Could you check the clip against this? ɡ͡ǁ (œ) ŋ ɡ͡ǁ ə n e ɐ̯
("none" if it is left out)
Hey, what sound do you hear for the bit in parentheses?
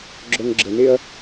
œ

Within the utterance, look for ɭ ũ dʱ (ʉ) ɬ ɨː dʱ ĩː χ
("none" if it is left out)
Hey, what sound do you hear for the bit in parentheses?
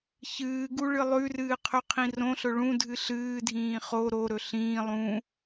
ɨ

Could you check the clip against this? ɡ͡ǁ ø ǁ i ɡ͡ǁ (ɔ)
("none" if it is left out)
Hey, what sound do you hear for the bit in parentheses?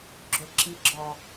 ɔ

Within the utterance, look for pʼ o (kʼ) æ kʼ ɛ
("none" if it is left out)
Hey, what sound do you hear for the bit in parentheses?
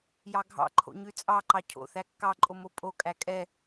kʼ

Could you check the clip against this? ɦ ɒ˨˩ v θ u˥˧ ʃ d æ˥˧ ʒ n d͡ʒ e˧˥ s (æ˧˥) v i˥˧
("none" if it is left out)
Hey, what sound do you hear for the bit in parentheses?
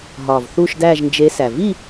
æ˨˩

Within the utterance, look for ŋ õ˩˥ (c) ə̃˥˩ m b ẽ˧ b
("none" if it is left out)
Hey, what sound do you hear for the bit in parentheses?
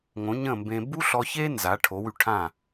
ɲ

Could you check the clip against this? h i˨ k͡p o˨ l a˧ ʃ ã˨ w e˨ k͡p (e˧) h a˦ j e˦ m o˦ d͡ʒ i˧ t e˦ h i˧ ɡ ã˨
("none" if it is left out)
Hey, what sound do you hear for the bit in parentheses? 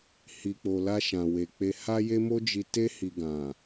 e˧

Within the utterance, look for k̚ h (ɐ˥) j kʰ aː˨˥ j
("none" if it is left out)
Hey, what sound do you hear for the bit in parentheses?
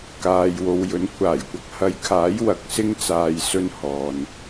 ɐ˨˧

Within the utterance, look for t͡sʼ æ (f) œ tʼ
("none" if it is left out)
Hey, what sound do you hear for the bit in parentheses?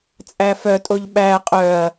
f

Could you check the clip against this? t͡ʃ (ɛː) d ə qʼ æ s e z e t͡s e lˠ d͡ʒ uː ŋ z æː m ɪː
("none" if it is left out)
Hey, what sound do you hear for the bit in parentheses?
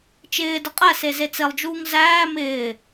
ɪː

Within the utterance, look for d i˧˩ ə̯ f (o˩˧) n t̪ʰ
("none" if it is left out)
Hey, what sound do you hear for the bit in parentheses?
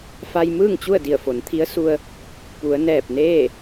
o˩˧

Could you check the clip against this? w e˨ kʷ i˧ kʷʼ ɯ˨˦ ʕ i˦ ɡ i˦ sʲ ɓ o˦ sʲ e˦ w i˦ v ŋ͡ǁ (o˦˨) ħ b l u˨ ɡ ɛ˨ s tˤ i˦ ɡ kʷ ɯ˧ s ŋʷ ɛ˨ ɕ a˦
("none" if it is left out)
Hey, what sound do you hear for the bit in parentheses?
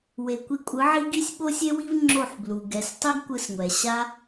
o˦˨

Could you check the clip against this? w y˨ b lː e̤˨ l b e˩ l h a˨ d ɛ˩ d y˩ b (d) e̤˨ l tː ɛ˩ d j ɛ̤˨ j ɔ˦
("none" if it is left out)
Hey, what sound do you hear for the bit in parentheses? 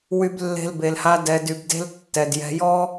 d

